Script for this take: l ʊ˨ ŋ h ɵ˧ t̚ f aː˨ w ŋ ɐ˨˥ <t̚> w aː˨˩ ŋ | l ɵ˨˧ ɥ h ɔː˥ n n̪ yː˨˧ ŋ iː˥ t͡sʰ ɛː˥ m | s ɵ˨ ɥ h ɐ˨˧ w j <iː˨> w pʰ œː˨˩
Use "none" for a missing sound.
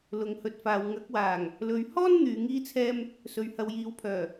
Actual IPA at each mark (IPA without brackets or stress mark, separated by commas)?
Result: k̚, iː˨˥